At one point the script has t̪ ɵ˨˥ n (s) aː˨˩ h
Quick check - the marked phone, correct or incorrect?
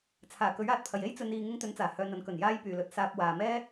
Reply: incorrect